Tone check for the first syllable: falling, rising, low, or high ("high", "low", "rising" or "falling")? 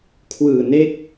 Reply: low